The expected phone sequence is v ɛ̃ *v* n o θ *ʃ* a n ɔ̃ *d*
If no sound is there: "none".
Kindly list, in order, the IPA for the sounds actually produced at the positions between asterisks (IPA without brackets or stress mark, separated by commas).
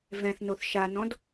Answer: θ, ʃ, d